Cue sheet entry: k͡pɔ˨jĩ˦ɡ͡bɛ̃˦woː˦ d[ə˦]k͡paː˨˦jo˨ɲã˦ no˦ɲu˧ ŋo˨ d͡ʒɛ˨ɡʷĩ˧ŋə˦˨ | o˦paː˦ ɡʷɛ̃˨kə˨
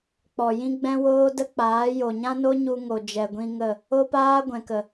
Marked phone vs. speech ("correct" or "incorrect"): correct